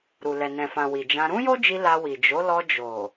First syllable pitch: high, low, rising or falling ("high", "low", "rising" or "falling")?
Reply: low